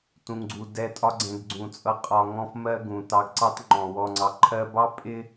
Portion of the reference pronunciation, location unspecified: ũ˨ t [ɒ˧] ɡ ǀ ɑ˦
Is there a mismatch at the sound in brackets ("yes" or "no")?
yes